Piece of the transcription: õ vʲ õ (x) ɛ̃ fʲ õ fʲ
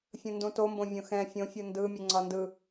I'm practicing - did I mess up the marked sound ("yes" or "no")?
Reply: no